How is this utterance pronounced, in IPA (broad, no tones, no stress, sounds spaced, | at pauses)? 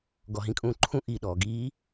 ɡ ɔ ɦ ĩ kʼ ũː ǃʰ ũ ʔ i ɗ ɔː ɡ iː